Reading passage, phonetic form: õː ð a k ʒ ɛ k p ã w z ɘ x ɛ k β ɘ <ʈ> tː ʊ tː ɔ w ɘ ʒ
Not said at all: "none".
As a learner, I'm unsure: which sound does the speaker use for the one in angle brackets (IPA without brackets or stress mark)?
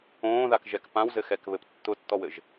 p